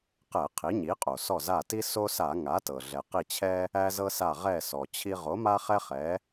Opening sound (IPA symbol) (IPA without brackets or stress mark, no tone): q